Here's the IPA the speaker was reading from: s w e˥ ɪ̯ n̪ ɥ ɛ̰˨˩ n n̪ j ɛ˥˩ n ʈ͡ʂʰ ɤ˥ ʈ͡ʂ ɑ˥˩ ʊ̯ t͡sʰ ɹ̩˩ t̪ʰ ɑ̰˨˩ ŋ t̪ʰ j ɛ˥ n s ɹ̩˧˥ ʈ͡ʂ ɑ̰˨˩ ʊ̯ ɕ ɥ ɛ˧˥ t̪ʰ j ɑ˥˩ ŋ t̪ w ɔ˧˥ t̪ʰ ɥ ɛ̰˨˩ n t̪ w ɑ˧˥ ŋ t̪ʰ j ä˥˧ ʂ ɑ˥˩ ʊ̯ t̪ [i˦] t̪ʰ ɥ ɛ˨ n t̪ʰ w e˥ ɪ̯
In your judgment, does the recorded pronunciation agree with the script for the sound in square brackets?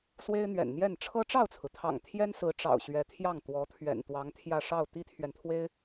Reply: no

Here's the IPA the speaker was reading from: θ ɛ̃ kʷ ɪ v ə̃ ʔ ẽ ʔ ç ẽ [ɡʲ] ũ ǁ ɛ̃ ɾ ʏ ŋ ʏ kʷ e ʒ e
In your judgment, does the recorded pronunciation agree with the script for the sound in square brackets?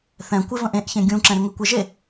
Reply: yes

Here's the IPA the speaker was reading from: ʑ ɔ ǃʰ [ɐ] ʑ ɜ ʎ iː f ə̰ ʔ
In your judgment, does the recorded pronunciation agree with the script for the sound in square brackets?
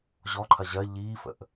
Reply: yes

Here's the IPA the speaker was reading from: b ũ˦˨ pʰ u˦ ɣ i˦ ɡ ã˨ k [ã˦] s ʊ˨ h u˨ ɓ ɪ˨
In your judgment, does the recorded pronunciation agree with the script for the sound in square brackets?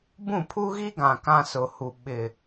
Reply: yes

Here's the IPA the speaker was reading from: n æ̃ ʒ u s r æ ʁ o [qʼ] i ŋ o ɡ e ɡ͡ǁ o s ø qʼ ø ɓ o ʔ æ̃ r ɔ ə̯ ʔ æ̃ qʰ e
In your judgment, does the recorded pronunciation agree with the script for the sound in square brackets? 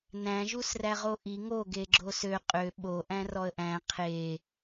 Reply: no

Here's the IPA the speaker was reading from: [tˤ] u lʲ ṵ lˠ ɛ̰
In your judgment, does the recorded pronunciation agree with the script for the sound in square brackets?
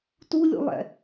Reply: no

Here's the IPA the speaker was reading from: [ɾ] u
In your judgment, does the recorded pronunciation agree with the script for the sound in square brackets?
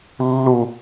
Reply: no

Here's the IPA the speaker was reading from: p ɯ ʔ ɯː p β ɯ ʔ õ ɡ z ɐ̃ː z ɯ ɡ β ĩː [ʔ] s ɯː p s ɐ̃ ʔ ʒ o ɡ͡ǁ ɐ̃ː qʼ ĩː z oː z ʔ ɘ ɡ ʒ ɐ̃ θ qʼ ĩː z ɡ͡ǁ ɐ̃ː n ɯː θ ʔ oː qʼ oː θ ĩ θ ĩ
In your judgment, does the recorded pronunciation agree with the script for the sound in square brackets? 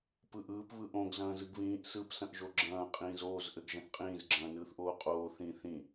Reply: yes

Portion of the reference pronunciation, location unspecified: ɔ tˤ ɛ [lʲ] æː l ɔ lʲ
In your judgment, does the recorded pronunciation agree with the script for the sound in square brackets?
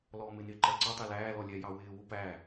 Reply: no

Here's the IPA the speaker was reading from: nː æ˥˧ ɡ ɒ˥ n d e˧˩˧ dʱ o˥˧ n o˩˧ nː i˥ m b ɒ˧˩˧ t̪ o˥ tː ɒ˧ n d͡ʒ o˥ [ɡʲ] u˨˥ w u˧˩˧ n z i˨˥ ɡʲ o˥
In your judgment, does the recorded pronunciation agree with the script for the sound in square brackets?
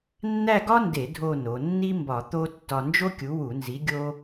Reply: no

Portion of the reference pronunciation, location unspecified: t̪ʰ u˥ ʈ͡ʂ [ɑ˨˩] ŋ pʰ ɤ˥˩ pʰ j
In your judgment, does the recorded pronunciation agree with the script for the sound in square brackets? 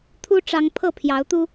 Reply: no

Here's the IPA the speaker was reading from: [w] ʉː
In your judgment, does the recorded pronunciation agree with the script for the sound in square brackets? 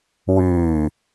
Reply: yes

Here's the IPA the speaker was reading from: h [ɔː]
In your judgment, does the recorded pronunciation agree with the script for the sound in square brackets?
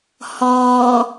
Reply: yes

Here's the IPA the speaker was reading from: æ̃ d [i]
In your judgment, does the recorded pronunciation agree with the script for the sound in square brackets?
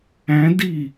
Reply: yes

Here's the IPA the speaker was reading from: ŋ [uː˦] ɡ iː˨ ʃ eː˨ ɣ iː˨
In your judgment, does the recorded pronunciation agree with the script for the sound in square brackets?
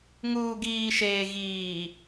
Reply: no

